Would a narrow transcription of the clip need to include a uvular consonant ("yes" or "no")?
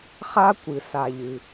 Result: yes